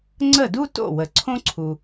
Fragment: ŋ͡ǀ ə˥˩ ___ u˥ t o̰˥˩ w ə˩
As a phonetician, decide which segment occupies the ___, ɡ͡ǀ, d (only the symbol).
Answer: d